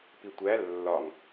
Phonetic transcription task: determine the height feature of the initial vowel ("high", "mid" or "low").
high